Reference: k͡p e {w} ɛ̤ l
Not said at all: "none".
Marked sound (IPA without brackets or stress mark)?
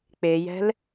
j